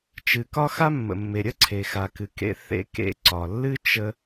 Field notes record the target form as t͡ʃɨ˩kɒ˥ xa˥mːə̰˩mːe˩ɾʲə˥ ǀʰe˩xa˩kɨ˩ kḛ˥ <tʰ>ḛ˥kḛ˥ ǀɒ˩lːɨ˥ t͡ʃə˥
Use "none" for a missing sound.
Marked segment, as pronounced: θ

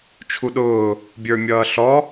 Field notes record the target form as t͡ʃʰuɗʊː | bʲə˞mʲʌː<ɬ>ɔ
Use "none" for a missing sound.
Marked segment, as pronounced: ɬ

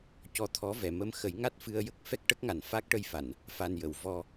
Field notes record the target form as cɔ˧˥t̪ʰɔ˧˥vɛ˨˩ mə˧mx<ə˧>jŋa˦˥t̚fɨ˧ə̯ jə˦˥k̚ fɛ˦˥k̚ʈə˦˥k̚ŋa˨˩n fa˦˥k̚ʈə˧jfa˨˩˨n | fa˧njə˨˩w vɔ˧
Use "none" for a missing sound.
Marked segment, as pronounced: ə˨˩˦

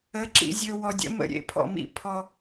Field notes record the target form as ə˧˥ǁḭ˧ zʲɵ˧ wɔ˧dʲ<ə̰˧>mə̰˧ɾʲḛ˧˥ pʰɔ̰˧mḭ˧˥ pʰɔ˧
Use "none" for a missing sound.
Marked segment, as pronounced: ə̰˧˥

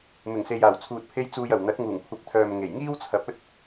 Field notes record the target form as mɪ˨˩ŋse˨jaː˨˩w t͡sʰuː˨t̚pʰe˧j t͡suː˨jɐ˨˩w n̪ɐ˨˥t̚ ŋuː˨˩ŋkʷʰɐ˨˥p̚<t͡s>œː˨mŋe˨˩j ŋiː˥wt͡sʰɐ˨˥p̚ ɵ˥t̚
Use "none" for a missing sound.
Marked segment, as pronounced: t̪ʰ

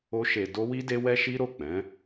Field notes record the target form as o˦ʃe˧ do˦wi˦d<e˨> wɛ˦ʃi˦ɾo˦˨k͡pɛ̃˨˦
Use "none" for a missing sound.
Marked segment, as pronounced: e˦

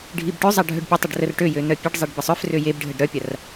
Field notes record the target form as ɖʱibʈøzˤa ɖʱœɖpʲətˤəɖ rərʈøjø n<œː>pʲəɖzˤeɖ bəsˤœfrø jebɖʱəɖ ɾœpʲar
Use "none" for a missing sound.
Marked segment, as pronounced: œ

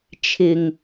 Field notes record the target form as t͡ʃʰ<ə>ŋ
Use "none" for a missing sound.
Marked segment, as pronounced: ɪ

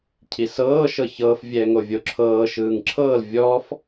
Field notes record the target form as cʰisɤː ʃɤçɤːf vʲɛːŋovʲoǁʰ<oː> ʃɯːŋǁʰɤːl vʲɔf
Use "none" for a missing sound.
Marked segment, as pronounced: ɤː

